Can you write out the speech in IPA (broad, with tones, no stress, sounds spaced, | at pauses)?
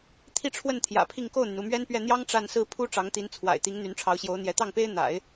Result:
t̪ʰ i˥˧ ʈ͡ʂʰ w ə˥˩ n t̪ʰ j ä̰˨˩ pʰ i˥˧ ŋ k o˥˩ ʊ̯ n̪ y˩ n u˥˩ m ɥ ɛ˥ n p ɥ ɛ˥˩ n̪ j ɑ˥ ŋ ʈ͡ʂ a˥˧ n s ɹ̩˥˩ pʰ u˥ ʈ͡ʂ ɑ˧˥ ŋ t̪ i˧˥ n t͡sʰ w a̰˨˩ ɪ̯ t̪ i˧˥ ŋ n̪ y˧˥ n ʈ͡ʂʰ ɑ˧˥ ʊ̯ ɕ j o˧˥ ʊ̯ n̪ j ɛ˧˥ t̪ ɑ˥˩ ŋ p e˥ ɪ̯ n̪ a̰˨˩˦ ɪ̯